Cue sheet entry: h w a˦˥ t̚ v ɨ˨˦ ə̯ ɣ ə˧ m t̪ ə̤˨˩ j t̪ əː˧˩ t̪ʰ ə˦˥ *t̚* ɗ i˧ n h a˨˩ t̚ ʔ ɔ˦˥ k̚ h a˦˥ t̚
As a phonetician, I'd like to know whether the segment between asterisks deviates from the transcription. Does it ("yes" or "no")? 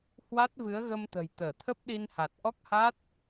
yes